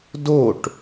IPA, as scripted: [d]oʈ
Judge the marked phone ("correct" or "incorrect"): correct